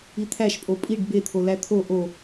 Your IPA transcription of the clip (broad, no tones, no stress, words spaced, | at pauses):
it̪ʰæʃ pʼopʼiɖ bet̪ʰo læt̪ʰo ʔo